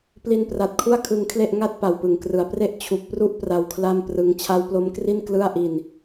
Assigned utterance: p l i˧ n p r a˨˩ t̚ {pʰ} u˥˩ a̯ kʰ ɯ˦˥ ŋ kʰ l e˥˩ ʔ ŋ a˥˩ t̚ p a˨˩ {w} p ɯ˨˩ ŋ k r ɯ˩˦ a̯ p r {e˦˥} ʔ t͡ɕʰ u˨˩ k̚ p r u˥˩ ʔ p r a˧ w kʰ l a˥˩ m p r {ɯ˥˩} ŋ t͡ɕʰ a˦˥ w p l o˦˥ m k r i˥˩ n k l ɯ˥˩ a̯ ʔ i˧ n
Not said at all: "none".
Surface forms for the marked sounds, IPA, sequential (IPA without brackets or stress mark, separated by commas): kʰ, w, e˦˥, ɯ˦˥